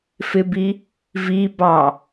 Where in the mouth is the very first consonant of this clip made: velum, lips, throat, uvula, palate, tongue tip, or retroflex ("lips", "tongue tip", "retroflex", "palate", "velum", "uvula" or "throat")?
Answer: lips